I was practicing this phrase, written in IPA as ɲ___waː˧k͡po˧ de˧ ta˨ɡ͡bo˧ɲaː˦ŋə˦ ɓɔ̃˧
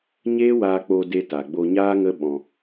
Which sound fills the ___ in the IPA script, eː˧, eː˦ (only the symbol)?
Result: eː˦